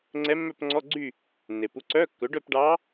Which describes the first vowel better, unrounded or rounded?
unrounded